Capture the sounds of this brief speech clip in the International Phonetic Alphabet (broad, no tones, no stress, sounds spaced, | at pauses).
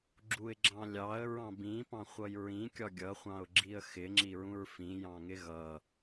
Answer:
ɡ͡ǁ u ɪ̯ ɡ͡ǁ ɑ̃ lʲ ɑ ə̯ ɹ ɑ̃ b ĩ p ɑ̃ χʷ ʌ j ɹ ĩ kʲ ɒ ɡʲ ʌ χʷ ɑ̃ ʊ̯ ɡ͡ǁ i ə̯ x ɪ ŋ͡ǁ i ɹ ũ ɹ f ĩ j ɑ̃ ŋ ɪ ɣ ʌ